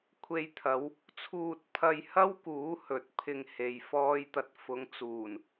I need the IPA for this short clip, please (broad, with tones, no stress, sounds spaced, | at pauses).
kʷʰ e˧ j t̪ʰ ɐ˨˧ w | t͡sʰ uː˧ t̚ pʰ ɐ˧ j h ɐ˥ w k uː˨˥ h ɵ˨ t̚ pʰ ɪ˧ ŋ h e˨ j f ɔː˥ j t̪ ɐ˧ t̚ f ʊ˨˧ ŋ t͡s uː˨˩ n